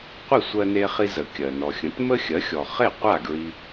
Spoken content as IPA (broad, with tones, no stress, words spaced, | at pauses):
qʷi˥˩ sʷɜ˧ne˧χi˧zə˩ kʲɜ˩ nɔ˩xʲə̃˩˥t mə˥xʲɜ˩˥xʲɔ˩ χe˥˩qʷa˥˩ ɡɹi˧